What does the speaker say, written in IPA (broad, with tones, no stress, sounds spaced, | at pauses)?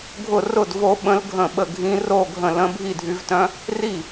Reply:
ɡʱ ʊ˥˩ r ʊ˥˩ d v o˧˥ ɓ ə̃˧˥ l ɡʱ ə̃˥˩ ɓ ə˥˩ ɡʱ ĩ˧˥ r o˥˩ ɡʱ ə̃˥˩ l ə̃˧˥ bʱ i˥˩ dʱ y˧˥ v t œ̃˧˥ | r i˥˩